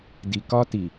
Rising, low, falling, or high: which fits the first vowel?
low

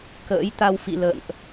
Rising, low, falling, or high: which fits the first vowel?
rising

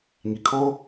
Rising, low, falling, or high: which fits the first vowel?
high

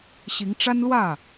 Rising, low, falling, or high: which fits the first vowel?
rising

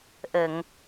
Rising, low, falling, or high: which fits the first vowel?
low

